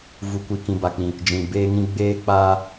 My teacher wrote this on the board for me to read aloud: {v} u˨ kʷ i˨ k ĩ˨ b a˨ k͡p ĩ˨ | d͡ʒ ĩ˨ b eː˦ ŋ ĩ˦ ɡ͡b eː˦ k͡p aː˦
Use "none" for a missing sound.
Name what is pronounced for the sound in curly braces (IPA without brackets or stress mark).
v